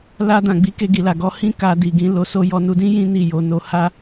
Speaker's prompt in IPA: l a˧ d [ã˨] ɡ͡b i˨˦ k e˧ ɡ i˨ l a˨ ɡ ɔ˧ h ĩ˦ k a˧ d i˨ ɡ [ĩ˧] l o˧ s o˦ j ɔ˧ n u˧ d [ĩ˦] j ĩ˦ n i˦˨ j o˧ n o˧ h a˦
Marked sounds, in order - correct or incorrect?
correct, correct, correct

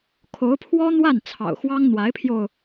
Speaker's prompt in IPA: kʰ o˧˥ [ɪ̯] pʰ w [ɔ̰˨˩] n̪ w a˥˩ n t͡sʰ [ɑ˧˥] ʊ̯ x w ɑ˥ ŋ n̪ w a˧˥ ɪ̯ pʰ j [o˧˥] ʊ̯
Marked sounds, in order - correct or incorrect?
incorrect: ʊ̯, incorrect: ɔ˥, incorrect: ɑ̰˨˩, incorrect: o˧

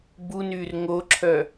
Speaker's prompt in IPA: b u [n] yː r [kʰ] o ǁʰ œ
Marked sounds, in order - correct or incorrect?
correct, incorrect: ŋ

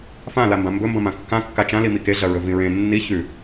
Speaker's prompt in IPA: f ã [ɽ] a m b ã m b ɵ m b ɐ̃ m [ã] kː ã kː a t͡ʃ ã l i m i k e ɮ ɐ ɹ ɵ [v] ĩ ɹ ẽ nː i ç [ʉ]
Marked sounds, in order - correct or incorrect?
incorrect: l, correct, correct, correct

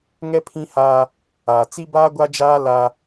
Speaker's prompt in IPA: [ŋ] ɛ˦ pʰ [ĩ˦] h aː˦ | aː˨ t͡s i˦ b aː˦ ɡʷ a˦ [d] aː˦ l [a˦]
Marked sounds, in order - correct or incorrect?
correct, correct, incorrect: d͡ʒ, correct

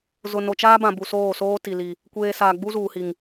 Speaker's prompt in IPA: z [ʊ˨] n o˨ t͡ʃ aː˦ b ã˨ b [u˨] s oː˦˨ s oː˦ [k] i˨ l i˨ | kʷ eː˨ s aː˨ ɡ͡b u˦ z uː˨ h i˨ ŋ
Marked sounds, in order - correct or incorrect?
correct, correct, incorrect: t

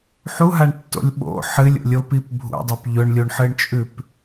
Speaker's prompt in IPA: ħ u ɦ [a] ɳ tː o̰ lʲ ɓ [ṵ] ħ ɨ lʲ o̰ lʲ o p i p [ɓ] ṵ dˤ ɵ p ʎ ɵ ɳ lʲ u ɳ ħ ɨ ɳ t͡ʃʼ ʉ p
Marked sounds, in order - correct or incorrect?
correct, incorrect: o̰, incorrect: bʱ

